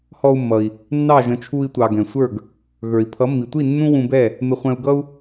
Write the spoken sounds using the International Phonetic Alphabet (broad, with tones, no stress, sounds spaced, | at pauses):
h ɔ˧ u̯ mː ʌ˩ i̯ | nː ɑ˥˩ ʒ ə̃˩˥ t͡ʃʰ u˧ i̯ tʷ ɑ˩ ɡ ɛ̃˩ sʷ ə˞˥˩ ɡ | ɣ ə˞˩ i̯ pʰ ʌ˩˥ mː i˩ tʷ i˥˩ nː ũ˥ w ũ˧ b ɛ˥˩ | m ɪ˧ χʷ ɛ̃˧ u̯ ɡ ʌ˥ u̯